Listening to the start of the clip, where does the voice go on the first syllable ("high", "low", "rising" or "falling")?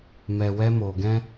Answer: low